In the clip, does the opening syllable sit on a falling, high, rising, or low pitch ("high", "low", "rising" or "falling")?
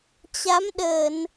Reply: rising